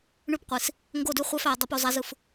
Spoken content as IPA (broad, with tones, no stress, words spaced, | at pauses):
ɳʉ˦pqʷi˨s | ŋɡo˦˨dʉ˦χʷæ˦fæ˨ dˤo˦p u˨zˤa˦zɯ˨f